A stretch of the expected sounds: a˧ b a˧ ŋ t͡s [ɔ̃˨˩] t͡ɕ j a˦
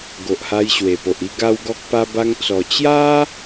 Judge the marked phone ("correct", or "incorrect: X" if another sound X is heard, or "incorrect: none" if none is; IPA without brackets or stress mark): incorrect: ɔ˨˩